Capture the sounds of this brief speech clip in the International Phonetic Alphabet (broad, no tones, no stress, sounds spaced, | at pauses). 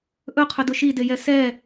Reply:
ʔ ɵ qʰ ɵ d ʊ ʃ i d e j ɛ s ɛ